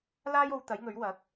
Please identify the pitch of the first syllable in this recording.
high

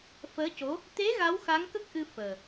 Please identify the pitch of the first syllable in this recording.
rising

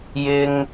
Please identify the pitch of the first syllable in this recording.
high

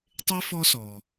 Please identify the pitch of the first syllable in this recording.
high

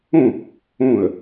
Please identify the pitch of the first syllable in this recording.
falling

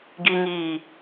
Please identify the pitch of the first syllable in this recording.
low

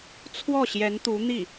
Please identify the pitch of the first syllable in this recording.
falling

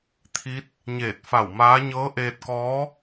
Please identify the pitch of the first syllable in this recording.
rising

